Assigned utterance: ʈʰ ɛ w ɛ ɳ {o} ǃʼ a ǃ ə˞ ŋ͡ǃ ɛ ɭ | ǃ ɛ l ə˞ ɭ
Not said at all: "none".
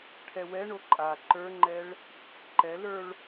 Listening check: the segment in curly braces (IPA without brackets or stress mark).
o